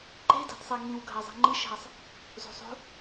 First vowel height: mid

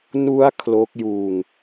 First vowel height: high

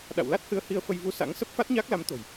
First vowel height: low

